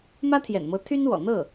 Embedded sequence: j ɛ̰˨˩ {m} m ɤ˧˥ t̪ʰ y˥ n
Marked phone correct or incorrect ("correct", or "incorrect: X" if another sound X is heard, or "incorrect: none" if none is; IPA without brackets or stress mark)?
incorrect: n